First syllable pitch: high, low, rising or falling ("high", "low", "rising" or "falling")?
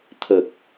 low